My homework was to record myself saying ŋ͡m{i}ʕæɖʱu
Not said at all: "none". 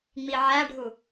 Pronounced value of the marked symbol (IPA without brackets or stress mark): i